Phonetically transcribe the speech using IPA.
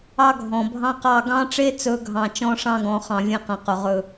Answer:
ɑ˦ ɡʱ ɔ̃˨ bʱ ɑ̃˦ q ɑ˦˨ ɡ ɑ̃˦ ʈ͡ʂ e˦ t͡s ɵ˨˦ ɡʱ ɑ̃˨ t͡ʃ ɔ̃˦ ʂ ɑ̃˦ ɡ ɔ̃˨ χ ɑ̃˨ vʲ ẽ˦ q ã˨ q ɵ˨ ʁ ɵ˦˨

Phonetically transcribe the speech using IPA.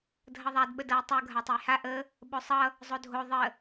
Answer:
dʱ ʌ ðˤ a d ɓ ə d ʌ j tˤ u ɡʱ a tˤ ə j h a ʔ ə | ɓ o sˤ ʌ | zˤ o dʱ o ðˤ ə

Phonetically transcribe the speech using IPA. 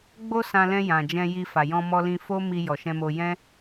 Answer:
ɡ͡b o˦ s ã˧ l ɛ̃˧ j ã˨ d͡ʒ ɛ̃˧ j i˧ f a˨ j ɔ̃˧ m ɔ˧ l ĩ˧ f o˦ m i˧ j ɔ˨ ʃ ɛ̃˧ m o˧ j ɛ̃˦

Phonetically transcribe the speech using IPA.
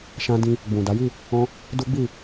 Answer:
ʃ ã˧ d ĩ˧ | ɡ͡b ũ˨ d a˨˦ j i˦˨ | ɔ̃˧ | d u˦ ɡ͡b i˦˨

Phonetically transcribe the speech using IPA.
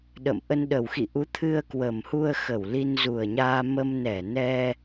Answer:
ɗ ə̰˧˨ m ʔ ə˧ n ɗ ə˨˩ w x ḭ˧˨ ʔ u˨˦ t̪ʰ ɨ˧ ə̯ k w ə˨˩ m h u˧ ə̯ x ə˧˩ w l i˧ n z u˨˩ ə̯ ɲ aː˧ m ə˧ m n ɛ˧˩ n ɛ˧

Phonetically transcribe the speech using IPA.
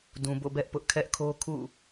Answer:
d ũ˨ b o̰˦˨ b ɛ˦ ʔ p ʊ˦ ʔ kʰ ɛ˦ ʔ kʰ o˦ kʰ ṵ˦˨

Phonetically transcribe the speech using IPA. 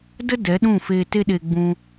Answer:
d ə˦ d ɛ˨˦ ɗ ũ˦˨ f eː˧ t e˦ ɗ e˧ ɡ͡b ũ˧

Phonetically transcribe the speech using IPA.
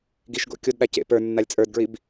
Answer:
ɡ i ʃ ɡ o̰ kʲ o d ɗ a c ḛ p ə˞ nː a lʲ t͡sʼ ə˞ d ɡ ɹ i b

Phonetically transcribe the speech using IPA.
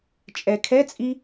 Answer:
t͡ʃʼ ɛ kʰ ɛ t͡sʼ i

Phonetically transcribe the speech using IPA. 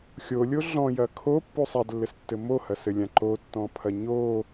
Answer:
xʲ o lʲ o ɮ ɔ̃ j ɐ kʰ o pː u sˤ a d lː ɘ s tː ɘ m o h ɐ s ɘ lʲ ã ǃ o tː ɔ̃ pʰ ɐ ɲ o

